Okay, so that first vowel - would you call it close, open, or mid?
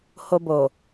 mid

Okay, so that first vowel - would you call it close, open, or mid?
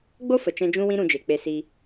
mid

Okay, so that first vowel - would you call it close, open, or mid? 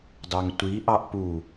open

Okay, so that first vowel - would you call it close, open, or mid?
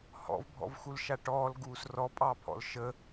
mid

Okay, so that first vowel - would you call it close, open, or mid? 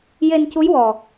mid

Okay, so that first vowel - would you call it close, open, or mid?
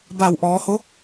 open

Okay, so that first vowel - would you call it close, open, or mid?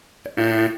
open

